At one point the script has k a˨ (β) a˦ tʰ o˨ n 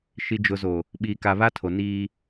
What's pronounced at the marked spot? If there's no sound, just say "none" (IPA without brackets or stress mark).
β